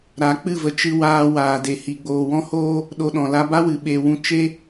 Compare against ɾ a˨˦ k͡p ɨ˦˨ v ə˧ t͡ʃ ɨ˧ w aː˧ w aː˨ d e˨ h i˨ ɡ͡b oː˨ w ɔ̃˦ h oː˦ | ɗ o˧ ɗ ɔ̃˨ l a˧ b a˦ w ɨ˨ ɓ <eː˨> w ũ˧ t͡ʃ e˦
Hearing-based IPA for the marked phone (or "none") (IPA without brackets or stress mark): eː˨